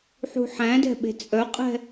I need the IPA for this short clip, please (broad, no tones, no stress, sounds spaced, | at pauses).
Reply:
ħ ṳ ħ æ̃ d ɛ̤ ɓ e̤ t͡sʼ œ qʼ ɛ̤